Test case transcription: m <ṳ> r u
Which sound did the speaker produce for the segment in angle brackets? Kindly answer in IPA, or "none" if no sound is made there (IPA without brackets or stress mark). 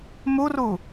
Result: u